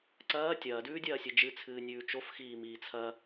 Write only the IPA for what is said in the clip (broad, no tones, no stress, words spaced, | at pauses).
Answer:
ǀɐː tʲɐːdʉːdʲɐːsʲɨ d͡ʒɨt͡sʰɨːnʲʉː t͡ʃofxiːmiː t͡sʰɐ